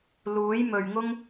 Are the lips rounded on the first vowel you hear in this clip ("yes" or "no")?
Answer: yes